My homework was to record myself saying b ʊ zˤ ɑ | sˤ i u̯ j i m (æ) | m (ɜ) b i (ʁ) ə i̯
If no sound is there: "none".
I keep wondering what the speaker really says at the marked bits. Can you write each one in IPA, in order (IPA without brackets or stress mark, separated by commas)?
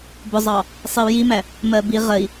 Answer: æ, ɜ, ʁ